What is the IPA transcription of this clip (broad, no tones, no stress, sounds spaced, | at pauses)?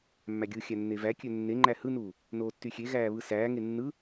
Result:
mː æ ɡʲ ɯ xʲ æ nː e v æ kʲ ø nː e ŋ͡ǃ æ h ɯ n uː | n oː tː y xʲ e ɣ æː β ɯ s æː ŋ e nː ɯ